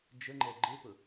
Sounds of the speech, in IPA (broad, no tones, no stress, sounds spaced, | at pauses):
d͡ʒ ə ŋ͡ǃ ɛ ɡ͡ǃ ɪ p ʊ